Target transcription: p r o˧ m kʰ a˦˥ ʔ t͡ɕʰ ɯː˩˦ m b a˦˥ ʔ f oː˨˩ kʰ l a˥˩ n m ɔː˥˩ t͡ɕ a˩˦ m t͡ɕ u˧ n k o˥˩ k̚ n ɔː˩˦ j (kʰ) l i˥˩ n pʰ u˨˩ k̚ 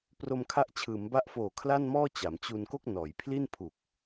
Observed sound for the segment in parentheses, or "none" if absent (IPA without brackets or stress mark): pʰ